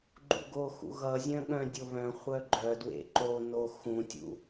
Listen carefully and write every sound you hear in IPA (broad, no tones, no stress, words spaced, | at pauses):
ɡ͡ǃṵɡoxṵ ɣʌzʲœ̃ ɠœ̃dʲo βœ̃ χʷœɡ͡ǃœdwḛ ǃono xũtʲṵ